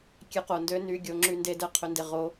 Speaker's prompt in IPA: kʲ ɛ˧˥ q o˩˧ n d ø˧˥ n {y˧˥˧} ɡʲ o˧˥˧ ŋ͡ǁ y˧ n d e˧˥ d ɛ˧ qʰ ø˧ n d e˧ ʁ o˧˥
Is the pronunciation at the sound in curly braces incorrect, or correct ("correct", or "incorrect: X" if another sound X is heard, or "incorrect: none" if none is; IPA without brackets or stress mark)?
correct